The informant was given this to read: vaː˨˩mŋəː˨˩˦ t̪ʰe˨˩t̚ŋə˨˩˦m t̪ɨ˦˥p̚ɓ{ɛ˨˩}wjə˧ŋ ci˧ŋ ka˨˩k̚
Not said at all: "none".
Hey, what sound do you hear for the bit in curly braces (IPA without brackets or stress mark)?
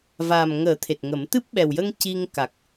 ɛ˨˩